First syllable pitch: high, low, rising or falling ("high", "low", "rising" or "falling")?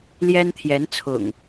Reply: high